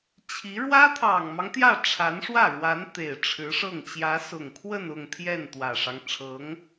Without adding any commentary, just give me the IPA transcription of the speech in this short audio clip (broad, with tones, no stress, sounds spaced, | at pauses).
t͡ɕʰ i˧˥ ɻ w ä˥ t̪ʰ ɑ˨˩ ŋ m ɑ˦ ŋ t̪ j ä˥˩ ʈ͡ʂʰ a˧˥ n ʂ w ä˥˩ ɻ w a˧˥ n t̪ e˨˩ ɪ̯ ʈ͡ʂʰ ɻ̩˧˥ ʂ ɤ˥˩ ŋ t͡ɕ j ä˧˥ s ʊ˨˩ ŋ kʰ w ə˥˧ n ʊ˥˧ ŋ t̪ʰ j ɛ˥˩ n t̪ w ä˨˩ ʂ ɑ˦ ŋ ʈ͡ʂʰ ɤ˧˥ ŋ